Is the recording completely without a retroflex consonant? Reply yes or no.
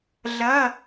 yes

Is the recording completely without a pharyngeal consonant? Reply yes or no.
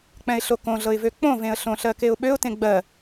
yes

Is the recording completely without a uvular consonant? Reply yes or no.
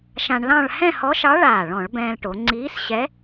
yes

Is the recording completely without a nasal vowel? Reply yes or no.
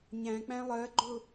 no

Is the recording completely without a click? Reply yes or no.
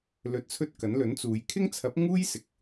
yes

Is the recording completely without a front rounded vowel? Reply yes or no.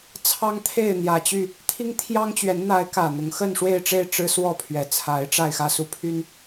no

